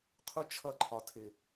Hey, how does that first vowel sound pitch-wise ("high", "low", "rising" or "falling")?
high